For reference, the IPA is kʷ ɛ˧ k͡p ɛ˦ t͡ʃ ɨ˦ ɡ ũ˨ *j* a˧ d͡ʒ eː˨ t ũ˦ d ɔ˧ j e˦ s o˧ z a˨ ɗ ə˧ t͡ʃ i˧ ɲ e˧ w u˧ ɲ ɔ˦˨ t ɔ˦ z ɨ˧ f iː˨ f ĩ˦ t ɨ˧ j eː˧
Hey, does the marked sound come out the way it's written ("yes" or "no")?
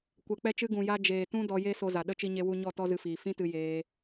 yes